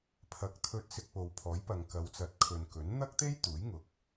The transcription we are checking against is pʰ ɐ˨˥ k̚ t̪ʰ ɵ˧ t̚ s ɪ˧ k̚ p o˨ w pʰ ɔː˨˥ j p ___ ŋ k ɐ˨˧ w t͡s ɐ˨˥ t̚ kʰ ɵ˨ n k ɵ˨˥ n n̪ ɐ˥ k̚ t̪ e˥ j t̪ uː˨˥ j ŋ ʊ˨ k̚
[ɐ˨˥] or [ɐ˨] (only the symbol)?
ɐ˨